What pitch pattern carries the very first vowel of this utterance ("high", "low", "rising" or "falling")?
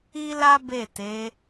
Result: high